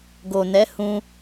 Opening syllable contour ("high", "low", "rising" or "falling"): low